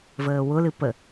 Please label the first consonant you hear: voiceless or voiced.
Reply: voiced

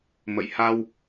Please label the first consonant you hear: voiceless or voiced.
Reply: voiced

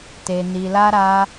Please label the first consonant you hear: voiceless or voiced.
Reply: voiceless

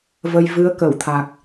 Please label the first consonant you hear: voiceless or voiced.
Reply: voiced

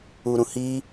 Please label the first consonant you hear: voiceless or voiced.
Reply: voiced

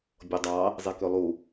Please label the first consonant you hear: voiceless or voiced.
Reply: voiced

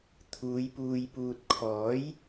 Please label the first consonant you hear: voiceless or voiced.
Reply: voiceless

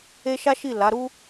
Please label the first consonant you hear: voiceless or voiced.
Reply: voiceless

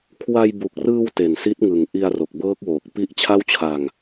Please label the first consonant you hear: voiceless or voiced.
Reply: voiceless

